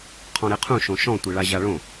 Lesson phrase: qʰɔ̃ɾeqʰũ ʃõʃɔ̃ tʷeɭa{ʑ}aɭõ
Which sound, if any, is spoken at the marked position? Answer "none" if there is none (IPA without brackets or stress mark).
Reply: ʑ